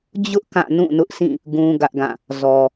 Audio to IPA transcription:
d͡ʑ ʊ˦ ʔ k ã˦˨ n ũ˦˨ n ʊ˦ ʔ s ĩ˦˨ | ɡ ũ˦ ɡ ä˦ ʔ ɡ ã˦˨ | z ɔ˨

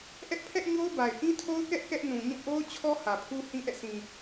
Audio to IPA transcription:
ʔ ɛ˦ ʔ pʰ ɛ˦ ʔ ɲ o˦ ʊ̯ b a˨ ɪ̯ ʔ ĩ˦ tʰ o˦ ʊ̯ k ɛ˦ ʔ k ɛ˦ ʔ n ũ˨ ɲ ũ˦˨ ʔ o˦ ʊ̯ t͡ɕʰ ɔ˦ h ä˨ pʰ u˦ h ĩ˦ ʔ ɛ̰˦˨ s ĩ˨

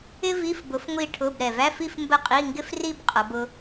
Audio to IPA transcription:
ɪ˥ v i˧˥˧ f b ʊ˨˥ f ŋʷ i˥˧ ʈʰ ʊ˧˥˧ b ɾ ɛ˨ v æ˧˥˧ f i˥˧ f m b ə˥˩ qʼ i˧˥˧ ŋ ɡ ɪ˥ f r i˥˧ b qʼ ʌ˨˥ b ʊ˥

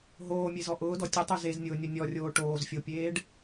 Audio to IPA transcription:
ɦ oː mʲ e z ɔ ʔ ʊː d ɔ tʲ ʊ tˤ u z e z nʲ ʊː nʲ o nʲ ɔ rʲ oː ʈ oː z fʲ o pʲ eː ɖ

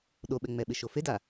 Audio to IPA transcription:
ɗ o ɓ ɛ ŋ͡m ɛ ɓ ɪ ʃ o f e d a

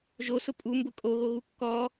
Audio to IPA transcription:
ʒ o s ʊ pʼ u m b ʊ kʼ o ɣ o ɣ u kː ɔ

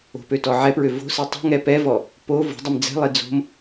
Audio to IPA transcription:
o̤ p ø t ɔ ʕ ɛ p ɹ ø v o̤ s i tˤ o̤ ŋ ɛ p ɛ v ɔ | p o v o̤ dˤ ə m d͡z ɛ̤ lˠ i d͡z o̤ m

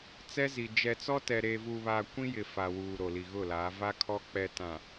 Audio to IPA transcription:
t͡s ɛ˦ z i˨ d͡ʒ ɛ˨ t͡s ɔ˦ t ɛ˨ ɾ eː˨ v uː˨ β aː˨ kʷ ĩ˦ j ɪ˨ f a˨ w uː˨ ɾ o˨ l i˨ ɣ ʊ˦˨ l aː˨˦ v a˦ kʰ ɔ˦ k͡p ɛ˨ t ã˨

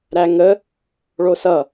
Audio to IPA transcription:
ɾ æ ŋ ə | ɭ o s ʌ

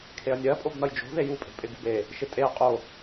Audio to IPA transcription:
kʰ e ɐ̯ nʲ ɜ pʼ o b n ʌ j d͡ʒ o̤ ð e j u pʼ e̤ pʼ ɪ ɡ ṳ b e | ʃ ɪ tʼ e ɐ̯ qʼ o

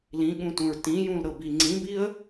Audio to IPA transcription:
l ĩ ɠ ũ t ũ ɹ t ĩ j ũ l ɾ ɤ b i ŋ͡ǀ ĩ b i ə̯

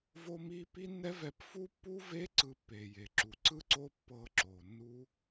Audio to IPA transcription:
v o˦ m i˦ p i˦ nː ɛ˦ v ɛ˧ p f u˦ pː u˦ v e˦ ǀ ɯ˧ pː e˨ j e˨ ǁ u˨ ǀ ɯ˦ ǀ o˦ pː ɤ˧ ǁ o˨ nː u˦

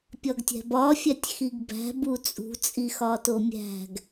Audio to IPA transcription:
pʲ ɒ ɡ tʲ æ̤ b ɒ fʲ æ tʲ x i ɡ b æ̤ b u t͡sʼ ṳ t͡sʼ i x ɒ t o mʲ æ̤ ɡ

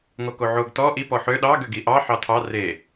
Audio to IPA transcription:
ŋ o k o ʕ o ɡ t ɔ ʔ i p ɔ ħ ø ɗ ɑ ɡ ø ɡ i ʔ ɑ ħ ɑ tʰ ɑ r e

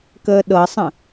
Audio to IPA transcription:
k əː ɗ ɤ sˤ ə̃

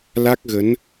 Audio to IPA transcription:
l a˦˥ k̚ ɣ ə˨˦ n

